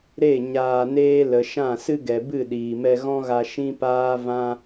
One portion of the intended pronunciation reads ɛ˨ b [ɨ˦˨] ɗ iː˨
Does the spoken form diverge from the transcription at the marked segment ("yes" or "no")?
no